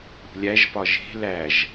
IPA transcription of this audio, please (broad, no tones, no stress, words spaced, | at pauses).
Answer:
ṳlʲæʒpɒ ʒe̤ læʒ